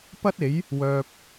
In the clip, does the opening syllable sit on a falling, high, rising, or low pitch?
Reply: high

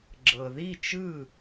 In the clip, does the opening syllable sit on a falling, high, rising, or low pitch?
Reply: low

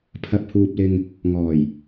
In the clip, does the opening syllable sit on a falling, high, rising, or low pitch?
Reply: rising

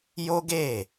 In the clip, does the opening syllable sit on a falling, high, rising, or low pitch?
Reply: high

